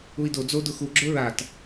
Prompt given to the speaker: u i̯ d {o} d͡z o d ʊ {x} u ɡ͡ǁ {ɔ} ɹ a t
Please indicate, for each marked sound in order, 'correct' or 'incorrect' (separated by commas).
correct, correct, incorrect